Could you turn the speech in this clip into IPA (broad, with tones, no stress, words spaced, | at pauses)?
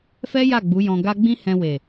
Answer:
fɛ˦ja˦˨ ɡ͡bu˨˦jɔ̃˧ɡa˦ ɡ͡bĩ˦hɛ̃˧we˨